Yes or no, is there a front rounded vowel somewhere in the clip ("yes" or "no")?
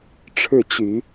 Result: yes